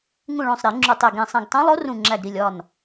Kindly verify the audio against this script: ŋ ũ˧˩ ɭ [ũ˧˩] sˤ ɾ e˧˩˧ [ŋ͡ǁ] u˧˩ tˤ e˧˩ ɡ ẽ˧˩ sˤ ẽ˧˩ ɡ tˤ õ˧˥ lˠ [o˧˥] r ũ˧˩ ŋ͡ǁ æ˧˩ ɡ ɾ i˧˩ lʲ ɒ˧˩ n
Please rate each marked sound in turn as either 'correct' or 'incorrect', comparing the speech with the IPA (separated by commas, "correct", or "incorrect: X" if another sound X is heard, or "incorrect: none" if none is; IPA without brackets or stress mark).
incorrect: õ˧˩, correct, correct